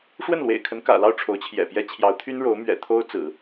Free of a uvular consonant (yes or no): yes